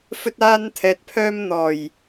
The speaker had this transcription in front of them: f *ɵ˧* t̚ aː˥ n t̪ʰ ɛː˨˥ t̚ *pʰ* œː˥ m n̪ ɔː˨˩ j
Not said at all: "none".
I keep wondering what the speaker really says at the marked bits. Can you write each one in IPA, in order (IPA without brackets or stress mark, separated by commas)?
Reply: ɵ˥, pʰ